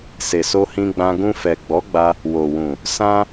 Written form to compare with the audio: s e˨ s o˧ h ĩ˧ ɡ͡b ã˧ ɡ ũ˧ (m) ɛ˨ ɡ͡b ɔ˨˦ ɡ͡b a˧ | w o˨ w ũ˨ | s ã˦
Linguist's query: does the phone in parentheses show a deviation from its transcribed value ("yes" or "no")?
yes